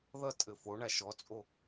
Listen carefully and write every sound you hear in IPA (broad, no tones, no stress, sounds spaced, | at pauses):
ð ʌ tʼ ɘ f o ɳ a ʃ ɔ t͡sʼ o